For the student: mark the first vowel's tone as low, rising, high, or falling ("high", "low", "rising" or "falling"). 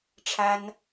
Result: high